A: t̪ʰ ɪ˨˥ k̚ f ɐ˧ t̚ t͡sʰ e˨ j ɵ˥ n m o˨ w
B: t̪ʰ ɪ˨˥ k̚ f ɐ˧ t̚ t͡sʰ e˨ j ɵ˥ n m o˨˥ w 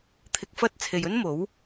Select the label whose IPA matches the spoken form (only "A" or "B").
B